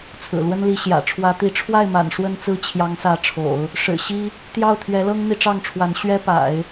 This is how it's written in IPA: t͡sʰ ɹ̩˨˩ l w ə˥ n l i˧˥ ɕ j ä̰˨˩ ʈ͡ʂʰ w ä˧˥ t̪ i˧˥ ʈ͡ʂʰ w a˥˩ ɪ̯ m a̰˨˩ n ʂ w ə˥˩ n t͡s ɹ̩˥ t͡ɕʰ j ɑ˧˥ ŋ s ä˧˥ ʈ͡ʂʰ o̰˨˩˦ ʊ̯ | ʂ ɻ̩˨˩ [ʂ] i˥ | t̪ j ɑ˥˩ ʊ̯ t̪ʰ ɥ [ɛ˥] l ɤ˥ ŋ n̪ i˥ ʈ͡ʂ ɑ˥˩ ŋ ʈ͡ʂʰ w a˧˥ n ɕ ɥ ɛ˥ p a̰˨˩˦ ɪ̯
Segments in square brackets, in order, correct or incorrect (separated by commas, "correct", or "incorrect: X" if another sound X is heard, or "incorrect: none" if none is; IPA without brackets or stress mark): incorrect: ɕ, incorrect: ɛ˧˥